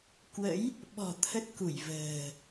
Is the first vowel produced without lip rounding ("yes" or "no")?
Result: yes